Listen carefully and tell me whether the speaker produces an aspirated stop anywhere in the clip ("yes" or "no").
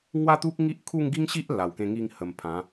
yes